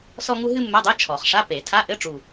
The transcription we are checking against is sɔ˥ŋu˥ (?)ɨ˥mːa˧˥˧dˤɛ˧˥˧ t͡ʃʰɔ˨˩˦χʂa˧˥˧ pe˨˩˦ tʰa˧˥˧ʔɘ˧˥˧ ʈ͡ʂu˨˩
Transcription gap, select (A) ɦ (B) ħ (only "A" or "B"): A